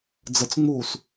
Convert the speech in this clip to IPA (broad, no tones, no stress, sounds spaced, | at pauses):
d͡z ə t͡s ŋ͡m uː s